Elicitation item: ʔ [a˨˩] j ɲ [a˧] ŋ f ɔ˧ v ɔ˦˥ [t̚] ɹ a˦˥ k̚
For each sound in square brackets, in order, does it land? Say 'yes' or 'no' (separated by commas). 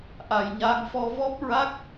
yes, yes, no